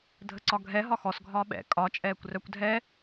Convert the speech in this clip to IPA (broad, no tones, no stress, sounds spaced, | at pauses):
dʱ ə ǀ ɒ ɡʱ ɛ ɦ ɒ x ɔ s ɡʱ ɒː ɓ ɛ̰ kʼ ɒ t͡ʃʼ ɛː kʷ r œ kʷ dʱ ɛ